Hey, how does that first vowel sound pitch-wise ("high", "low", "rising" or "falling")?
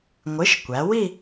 rising